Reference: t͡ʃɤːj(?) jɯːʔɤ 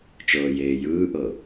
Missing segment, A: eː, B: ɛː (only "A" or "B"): A